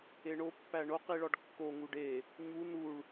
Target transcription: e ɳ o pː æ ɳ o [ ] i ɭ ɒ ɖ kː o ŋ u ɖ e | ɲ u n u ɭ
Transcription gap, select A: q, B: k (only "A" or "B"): A